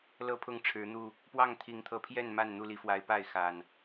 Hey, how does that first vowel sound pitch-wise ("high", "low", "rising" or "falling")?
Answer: falling